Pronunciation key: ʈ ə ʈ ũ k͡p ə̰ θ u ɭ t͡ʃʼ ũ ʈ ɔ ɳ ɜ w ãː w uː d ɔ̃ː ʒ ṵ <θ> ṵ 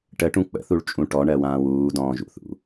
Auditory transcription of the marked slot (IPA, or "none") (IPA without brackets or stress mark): θ